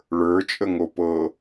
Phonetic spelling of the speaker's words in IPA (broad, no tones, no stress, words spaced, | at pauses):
ɭə˞t͡ʃʼəŋo pɤ